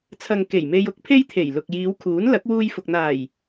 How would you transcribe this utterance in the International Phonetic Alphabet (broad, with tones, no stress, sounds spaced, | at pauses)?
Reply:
t͡sʰ ɐ˨ ŋ k e˨˩ j m e˧ j ʊ˨˥ k̚ pʰ e˥ j t̪ʰ e˨˩ j l ʊ˨ k̚ j iː˨˧ w kʰ uː˨˥ n l ɐ˨˥ k̚ w uː˧ j f ʊ˨ k̚ n̪ aː˨˩ j